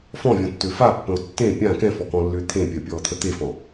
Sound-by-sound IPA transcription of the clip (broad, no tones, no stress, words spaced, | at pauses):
fɔ̃vʲɔ̃tːø fapːə̃o̯ tːẽ pʲã kɛ̃fɔkɔ̃lːʏː t̪ʰẽpʲɜpʲɔːt̪ʰə t̪efɔ̃